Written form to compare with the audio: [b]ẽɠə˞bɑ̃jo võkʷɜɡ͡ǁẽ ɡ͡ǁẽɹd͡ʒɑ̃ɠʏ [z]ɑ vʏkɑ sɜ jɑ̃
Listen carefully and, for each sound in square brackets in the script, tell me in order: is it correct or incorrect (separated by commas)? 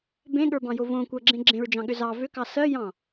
correct, correct